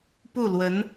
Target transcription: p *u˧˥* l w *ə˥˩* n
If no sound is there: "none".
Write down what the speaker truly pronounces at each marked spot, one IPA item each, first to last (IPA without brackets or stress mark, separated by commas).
u˥˩, ə˧˥